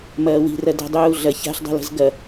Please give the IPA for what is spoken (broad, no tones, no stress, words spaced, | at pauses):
mɐːwi̤rɐdɛ̤ dˤuːɮɐ ça̤ɬdˤɛ̤lə̤z ɡɐ